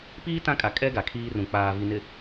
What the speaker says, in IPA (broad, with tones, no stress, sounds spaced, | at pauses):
p iː˦ t ã˦ kʼ a˨ kʼ ɛ˦ ɡ a˨ kʰ iː˦ r ũ˨ k͡p aː˨ v i˨ n ɪ˨